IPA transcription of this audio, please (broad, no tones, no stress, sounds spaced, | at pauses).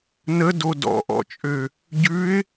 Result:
n ə d o d ɔ̰ ʔ ɔ̰ t͡ʃʼ ø | ɟ ʉ ɪ̯